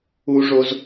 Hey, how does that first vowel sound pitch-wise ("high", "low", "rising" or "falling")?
low